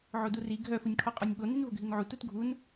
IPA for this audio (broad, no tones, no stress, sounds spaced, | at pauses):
ʕ o d u r i ɡʱ œ f u nʲ kʰ ɔ qʼ ɔ nʲ ɓ o n i n v o ɡʱ i n ʕ u t u t ɡʱ u n